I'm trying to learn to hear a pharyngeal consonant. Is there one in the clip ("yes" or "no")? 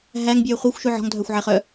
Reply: yes